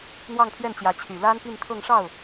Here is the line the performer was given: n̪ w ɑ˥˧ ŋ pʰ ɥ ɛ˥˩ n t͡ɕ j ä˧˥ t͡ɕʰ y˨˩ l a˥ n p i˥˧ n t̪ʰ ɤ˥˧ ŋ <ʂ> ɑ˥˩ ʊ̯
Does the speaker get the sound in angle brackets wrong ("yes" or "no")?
no